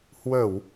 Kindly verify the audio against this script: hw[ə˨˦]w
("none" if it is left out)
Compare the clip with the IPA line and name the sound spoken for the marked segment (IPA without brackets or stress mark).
ə˧˩˨